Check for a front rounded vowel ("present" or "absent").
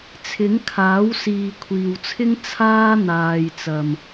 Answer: absent